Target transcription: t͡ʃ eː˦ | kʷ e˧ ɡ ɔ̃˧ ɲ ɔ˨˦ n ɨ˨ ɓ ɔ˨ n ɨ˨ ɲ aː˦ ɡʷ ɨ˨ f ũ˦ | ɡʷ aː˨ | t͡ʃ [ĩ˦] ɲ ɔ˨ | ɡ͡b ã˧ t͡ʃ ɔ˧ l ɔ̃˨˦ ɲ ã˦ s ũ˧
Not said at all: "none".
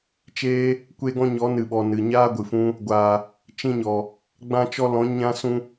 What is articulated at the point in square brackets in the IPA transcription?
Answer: ĩ˧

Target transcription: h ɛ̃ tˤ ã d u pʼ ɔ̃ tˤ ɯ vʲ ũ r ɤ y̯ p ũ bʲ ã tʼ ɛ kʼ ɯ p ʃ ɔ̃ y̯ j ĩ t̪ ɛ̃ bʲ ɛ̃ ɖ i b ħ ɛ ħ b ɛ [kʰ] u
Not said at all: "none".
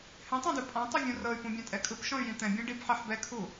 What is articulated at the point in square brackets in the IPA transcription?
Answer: kʰ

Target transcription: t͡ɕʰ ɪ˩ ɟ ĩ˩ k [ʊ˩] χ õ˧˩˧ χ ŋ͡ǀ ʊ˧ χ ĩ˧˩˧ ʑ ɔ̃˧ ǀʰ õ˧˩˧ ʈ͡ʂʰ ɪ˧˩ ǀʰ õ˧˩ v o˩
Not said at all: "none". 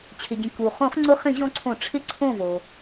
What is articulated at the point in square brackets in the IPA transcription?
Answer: u˩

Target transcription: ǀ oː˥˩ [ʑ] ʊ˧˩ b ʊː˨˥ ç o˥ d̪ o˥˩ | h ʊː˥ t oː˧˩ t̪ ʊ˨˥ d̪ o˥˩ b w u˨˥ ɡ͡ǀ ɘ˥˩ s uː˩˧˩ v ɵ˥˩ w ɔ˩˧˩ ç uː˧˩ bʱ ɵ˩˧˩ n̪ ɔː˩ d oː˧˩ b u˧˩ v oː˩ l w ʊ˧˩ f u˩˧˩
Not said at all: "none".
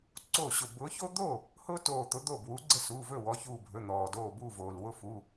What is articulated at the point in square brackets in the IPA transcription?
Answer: ɕ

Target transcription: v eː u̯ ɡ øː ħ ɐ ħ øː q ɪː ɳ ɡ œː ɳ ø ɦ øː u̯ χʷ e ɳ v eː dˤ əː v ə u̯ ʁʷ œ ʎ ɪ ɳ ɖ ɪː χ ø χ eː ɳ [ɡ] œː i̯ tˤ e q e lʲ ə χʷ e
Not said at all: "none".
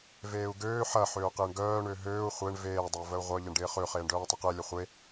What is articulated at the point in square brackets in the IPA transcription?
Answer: ɖ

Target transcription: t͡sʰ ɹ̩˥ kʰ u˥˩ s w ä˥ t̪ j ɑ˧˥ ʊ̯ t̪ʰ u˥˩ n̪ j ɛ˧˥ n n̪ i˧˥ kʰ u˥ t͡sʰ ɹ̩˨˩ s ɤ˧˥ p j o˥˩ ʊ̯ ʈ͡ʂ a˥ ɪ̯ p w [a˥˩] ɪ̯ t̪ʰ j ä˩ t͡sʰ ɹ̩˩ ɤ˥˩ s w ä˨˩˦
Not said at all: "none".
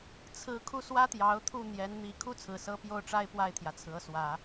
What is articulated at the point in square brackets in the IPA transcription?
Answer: a˥˩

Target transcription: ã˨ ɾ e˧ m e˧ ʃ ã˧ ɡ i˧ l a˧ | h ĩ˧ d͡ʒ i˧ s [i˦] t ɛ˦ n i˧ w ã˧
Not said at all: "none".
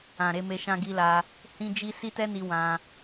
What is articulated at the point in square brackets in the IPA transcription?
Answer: i˦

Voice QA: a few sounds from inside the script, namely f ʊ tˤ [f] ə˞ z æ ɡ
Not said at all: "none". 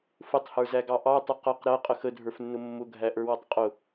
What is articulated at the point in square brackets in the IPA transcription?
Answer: h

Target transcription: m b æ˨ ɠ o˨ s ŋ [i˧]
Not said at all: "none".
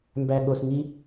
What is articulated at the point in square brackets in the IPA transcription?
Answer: i˧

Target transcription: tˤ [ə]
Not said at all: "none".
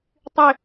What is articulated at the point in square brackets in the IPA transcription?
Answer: ʏ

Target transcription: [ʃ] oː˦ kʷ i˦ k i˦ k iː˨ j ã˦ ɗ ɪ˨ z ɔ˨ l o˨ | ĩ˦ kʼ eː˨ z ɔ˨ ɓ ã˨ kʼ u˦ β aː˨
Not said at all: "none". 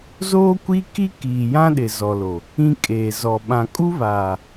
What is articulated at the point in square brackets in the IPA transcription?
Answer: z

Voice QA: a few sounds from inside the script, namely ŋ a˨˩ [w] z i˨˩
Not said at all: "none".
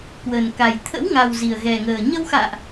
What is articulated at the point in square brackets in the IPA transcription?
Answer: w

